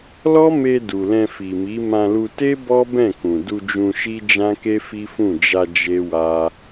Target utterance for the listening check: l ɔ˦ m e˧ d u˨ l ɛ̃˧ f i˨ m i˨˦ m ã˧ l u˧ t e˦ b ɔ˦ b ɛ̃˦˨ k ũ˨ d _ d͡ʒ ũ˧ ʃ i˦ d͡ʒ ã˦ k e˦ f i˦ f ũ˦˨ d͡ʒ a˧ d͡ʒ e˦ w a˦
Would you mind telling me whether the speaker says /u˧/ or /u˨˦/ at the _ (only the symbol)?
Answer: u˧